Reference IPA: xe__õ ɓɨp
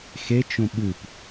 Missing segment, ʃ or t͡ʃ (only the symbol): t͡ʃ